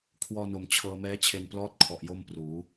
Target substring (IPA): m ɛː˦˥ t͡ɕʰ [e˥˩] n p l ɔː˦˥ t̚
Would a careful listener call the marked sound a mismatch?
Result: yes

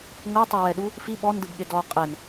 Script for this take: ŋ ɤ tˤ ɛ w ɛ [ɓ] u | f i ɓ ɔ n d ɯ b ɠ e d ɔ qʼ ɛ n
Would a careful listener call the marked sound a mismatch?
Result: yes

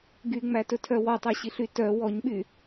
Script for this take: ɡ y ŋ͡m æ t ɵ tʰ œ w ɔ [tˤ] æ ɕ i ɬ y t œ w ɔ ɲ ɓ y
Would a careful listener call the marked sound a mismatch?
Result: no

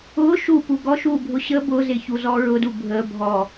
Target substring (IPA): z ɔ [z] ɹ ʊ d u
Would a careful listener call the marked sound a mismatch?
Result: yes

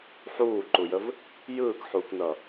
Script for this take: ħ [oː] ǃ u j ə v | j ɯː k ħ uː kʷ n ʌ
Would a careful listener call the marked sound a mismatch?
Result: yes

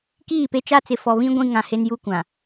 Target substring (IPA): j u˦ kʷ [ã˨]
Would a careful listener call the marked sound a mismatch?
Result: no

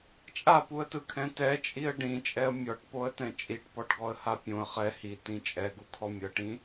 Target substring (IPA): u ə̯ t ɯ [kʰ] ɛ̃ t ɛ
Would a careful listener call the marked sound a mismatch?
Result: no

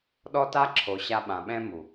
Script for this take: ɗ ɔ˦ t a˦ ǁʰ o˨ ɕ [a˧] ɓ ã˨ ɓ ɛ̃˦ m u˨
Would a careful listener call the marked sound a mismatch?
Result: no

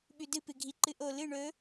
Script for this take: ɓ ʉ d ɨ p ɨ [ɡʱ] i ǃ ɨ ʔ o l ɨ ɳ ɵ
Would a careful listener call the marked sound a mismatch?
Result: no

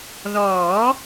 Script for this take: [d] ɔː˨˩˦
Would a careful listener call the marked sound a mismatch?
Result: yes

